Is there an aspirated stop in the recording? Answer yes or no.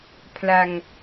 yes